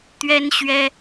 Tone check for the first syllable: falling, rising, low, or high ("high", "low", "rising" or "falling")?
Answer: high